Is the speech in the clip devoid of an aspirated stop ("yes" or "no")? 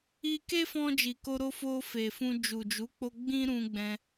yes